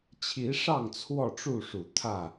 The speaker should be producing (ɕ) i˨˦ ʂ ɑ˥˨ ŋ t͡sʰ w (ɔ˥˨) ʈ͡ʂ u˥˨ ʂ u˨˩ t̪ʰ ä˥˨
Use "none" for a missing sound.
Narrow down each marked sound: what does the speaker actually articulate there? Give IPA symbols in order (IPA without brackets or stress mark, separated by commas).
t͡ɕʰ, ɔ˥˨